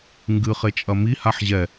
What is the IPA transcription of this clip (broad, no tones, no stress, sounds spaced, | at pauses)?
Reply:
ŋ ɡ ɨ χ e t͡ʃʼ ɐ m i h a ħ ʑ ɛ